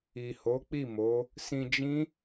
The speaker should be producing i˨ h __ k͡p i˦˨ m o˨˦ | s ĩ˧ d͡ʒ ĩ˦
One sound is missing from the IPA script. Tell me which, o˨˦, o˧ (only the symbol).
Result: o˨˦